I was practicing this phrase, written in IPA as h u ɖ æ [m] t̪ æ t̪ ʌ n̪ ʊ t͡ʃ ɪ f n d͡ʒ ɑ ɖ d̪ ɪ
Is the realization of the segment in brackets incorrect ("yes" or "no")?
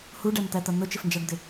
no